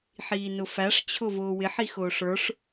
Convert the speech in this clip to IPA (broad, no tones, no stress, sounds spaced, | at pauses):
ħ iː n ʊ f æ ʂ t͡ɕʰ ʊ v ʊː w ɪ ħ i x ʊː ʂ ə˞ ʂ